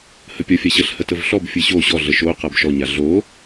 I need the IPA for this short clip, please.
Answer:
h ə pʲ ɔ fʲ a ɕ ə ɬ h ə t ə v ɬ ɔ b fʲ ɯ ɕ o ɕ ɔ ɮ ə ʃ o q a b ʃ ɔ ɲ a ɮ o

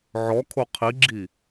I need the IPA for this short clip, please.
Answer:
ʕ ɔ kʰ o qʰ i ɡ͡ǁ i

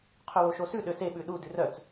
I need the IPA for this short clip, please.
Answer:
qʰ ɵ w o ʃ o s ʉ ɗ ø s e ɓ ʉ ɗ u d ʉ r œ t͡s

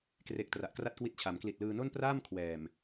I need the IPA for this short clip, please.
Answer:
k r e˨˩ k̚ t r a˨˩ ʔ k r a˥˩ t̚ k w i˦˥ t̚ t͡ɕʰ a˩˦ m k l i˨˩ t̚ l ɯː˧ n o˥˩ n p r aː˥˩ m kʰ w ɛː˨˩ m

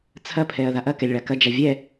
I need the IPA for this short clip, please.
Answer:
t͡sʰ ɐ pʰ ɛ ɐ̯ ð a ʔ ɐ k ɛ lʲ ɭ a k ɐ d͡ʒ a vʲ ɛ

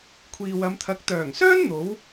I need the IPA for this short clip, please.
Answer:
kʷʰ iː˨ w ɐ˨˧ m t̪ʰ ɐ˨˥ k̚ t̪ œː˨˩ ŋ s œː˥ n n̪ o˨˥ w

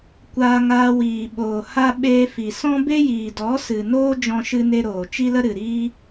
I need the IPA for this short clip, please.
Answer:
kʷ aː˧ ŋ aː˧ w iː˨ ɓ oː˨ h a˦ ɓ eː˧ f i˨ s ɔ̃˦ b e˦ j iː˨ d ɔ˨˦ s ɨ˨ n oː˦ d͡ʒ ɔ̃˦ ʃ ɨ˦ n e˦ ɾ oː˨ t͡ʃ i˦ l ə˦ ɾ ɨ˨ ɾ iː˦

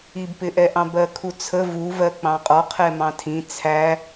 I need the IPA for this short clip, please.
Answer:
i b p ɪ ʔ ɛ ʔ ɑ̃ b ɜ kʰ u t͡sʰ ə v u v ɜ k͡p ɑ̃ qʼ ɒ qʰ ɛ m ɑ̃ tʰ ĩ t͡sʰ æ

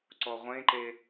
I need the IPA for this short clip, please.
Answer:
ǀ ɔ ʁʷ ẽ ǃ e

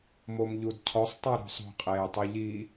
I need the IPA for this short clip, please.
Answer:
m o m ʎ u d cʰ ɔ sˤ tˤ ə˞ ɾ o̤ sˤ o̤ qʼ eː tˤ u ʎ i

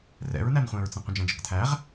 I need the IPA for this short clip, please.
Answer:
r ɛ̰ ɹ n æ n χʷ ɛ̃ ɹ t͡s ə̃ qʷ ə̃ d͡ʒ æ̃ d͡ʒ ə̰ k tʰ æ ʁ

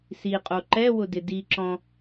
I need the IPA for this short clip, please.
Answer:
s i qʼ o ǃ ɛ w ʊ d ɪ d i ǁ ɔ̃

